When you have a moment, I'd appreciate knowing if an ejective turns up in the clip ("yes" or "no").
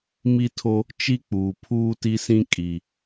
yes